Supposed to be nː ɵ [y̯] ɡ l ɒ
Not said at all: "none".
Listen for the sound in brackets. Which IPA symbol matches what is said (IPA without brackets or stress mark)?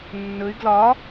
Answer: y̯